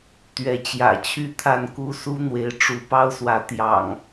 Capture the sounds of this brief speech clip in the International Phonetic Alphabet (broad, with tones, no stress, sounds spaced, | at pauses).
t̪ ɥ ɛ˨˦ t͡ɕ j ä̰˨˩ t͡ɕʰ y˥˨ t̪ʰ a˥˨ n k u˦ s u˦ n̪ w e˨˦ ɪ̯ ʈ͡ʂ u˨˦ p ɑ˦ ʊ̯ s w ä˨˦ t̪ j ɑ̰˨˩ ŋ